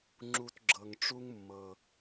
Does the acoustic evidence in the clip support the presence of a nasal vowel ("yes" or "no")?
no